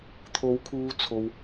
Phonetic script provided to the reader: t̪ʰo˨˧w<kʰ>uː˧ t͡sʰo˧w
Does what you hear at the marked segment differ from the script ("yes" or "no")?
no